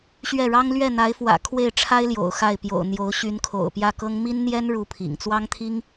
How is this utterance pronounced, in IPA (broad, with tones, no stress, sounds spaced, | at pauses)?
ɕ ɥ ɛ˥˩ ɻ ɑ˥ ŋ l ɥ ɛ˥˩ n̪ a˧˥ ɪ̯ f w ä̰˨˩ kʰ w e˥˩ ɪ̯ ʈ͡ʂʰ a˥ ɪ̯ l j o̰˨˩ ʊ̯ x a˥˩ ɪ̯ p j o̰˨˩ ʊ̯ n̪ j o˧˥ ʊ̯ ɕ y˧˥ n kʰ o̰˨˩ ʊ̯ p j ä˥˩ k ɤ˥ ŋ m i˥ n n̪ j ɛ˥ n ɻ u˥˩ pʰ ḭ˨˩ ŋ t͡s w ɑ˥ ŋ t̪ʰ i˥ ŋ